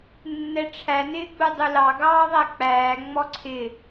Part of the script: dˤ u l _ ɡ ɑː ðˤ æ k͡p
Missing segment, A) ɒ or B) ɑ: B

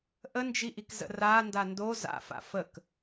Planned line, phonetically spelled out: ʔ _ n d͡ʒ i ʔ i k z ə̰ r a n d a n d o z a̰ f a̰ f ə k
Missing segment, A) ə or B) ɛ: A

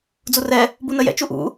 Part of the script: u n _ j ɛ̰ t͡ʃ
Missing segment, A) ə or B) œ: A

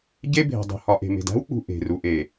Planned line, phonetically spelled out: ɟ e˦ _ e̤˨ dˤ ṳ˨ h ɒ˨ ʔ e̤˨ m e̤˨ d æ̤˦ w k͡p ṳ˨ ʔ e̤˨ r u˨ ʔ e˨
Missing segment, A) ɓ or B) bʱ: B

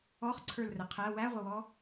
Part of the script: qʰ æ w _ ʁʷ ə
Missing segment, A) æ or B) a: A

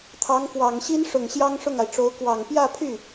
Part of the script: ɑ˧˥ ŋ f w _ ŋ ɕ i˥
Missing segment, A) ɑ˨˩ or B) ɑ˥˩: A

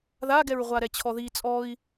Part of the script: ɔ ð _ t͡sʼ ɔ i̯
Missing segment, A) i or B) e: A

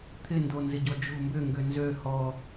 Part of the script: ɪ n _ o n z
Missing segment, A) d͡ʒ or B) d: B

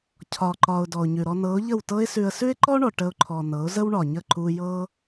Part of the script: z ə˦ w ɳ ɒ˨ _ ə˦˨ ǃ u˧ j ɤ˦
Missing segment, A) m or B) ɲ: B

